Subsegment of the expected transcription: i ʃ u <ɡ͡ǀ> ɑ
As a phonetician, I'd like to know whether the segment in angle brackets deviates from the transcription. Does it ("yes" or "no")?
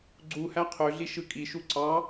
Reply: yes